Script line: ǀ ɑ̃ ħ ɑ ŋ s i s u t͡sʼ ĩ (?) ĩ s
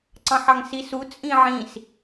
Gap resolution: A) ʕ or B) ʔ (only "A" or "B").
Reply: A